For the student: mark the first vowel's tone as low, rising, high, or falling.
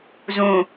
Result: low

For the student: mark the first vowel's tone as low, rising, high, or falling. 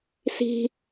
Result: low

